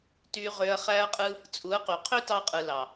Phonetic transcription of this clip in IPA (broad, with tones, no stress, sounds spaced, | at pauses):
t y˧ ʁ ø˧ ɐ̯ χ æ˦ ɐ̯ qʼ ɯ˦ | t͡sʼ u˨˦ ɐ̯ q y˨ qʰ ø˦ t ɑ˧ qʼ ɯ˨ l ɑ˨